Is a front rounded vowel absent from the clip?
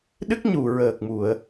yes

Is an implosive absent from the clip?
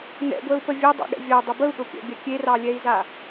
no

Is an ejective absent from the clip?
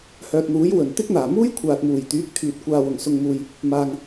yes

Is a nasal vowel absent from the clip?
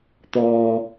yes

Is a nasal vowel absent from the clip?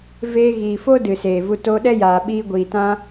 no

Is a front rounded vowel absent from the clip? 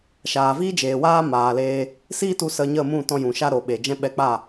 yes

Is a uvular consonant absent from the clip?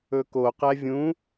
no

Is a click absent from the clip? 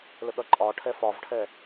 no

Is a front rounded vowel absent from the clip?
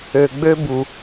no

